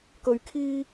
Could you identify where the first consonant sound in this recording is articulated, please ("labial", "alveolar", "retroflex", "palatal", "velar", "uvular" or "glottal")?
velar